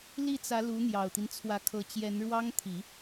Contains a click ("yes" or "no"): no